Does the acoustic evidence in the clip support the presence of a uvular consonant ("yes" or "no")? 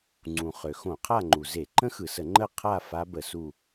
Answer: yes